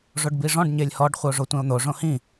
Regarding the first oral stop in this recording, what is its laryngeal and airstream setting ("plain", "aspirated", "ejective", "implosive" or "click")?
plain